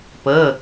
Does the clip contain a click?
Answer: no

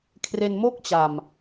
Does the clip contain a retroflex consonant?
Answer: no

